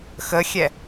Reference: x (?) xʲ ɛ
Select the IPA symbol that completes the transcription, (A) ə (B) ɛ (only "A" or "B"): A